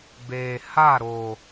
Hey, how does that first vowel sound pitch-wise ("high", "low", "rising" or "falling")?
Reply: low